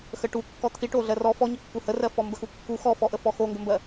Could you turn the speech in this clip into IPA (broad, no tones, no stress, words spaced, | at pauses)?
xəʈu kːɔt̪ʰiʈo ɮɜrɔ fɔɲəkːu hərɜ fɔmbəxukːu xɔfɔʔəfɔ xoŋɡəmbɜ